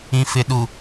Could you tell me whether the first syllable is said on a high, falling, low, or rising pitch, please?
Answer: low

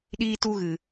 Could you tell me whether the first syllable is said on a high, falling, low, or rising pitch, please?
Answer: high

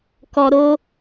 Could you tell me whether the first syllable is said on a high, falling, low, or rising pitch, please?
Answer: low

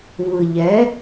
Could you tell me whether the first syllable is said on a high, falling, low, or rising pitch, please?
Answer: low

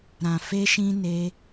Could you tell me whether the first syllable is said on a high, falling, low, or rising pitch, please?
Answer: low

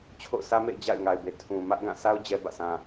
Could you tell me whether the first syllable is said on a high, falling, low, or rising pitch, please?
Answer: falling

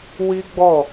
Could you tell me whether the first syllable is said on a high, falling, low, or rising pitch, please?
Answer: high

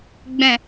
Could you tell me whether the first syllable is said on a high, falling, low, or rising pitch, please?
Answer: low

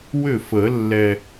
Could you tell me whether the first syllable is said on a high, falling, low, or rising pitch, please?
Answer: falling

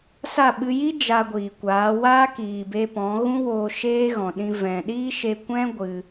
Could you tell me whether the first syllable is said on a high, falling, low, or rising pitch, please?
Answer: falling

